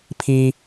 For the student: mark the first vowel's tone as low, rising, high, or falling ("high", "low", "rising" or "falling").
high